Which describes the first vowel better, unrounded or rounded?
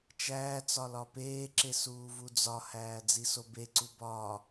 unrounded